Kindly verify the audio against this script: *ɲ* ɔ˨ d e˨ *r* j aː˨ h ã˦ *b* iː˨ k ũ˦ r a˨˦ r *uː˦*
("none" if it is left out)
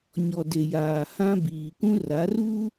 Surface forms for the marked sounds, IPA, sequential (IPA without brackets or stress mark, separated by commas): ɲ, none, b, uː˦